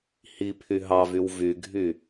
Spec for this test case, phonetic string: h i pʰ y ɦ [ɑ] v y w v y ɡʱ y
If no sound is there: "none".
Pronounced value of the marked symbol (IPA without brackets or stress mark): ɑ